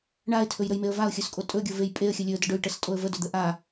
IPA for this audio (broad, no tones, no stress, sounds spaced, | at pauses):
ɳ a ɪ̯ tʰ ɵ j ɾ ə j m e ə̯ v a ʊ̯ xʲ ɵ s kʼ o tʼ ɵ ɡʲ o v e j pʼ e ə̯ xʲ ə lʲ ɵ ə̯ d ə ɖ ɵ j ʈ ə s tʼ o ə̯ v ə d ɵ d̪ ə ʔ a